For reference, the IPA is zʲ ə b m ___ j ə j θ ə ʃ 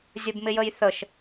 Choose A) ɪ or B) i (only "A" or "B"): A